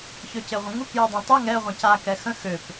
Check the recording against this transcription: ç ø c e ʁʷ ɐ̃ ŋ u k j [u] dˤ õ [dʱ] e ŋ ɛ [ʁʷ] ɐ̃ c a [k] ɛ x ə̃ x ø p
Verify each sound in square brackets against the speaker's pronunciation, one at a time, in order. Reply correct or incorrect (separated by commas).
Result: incorrect, incorrect, correct, correct